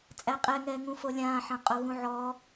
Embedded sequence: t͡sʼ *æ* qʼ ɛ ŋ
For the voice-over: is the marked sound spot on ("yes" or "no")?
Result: yes